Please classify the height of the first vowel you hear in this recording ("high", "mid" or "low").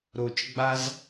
mid